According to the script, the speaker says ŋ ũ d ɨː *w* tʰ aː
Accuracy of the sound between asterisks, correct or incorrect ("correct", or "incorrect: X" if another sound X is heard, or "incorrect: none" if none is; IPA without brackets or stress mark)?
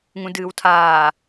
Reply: correct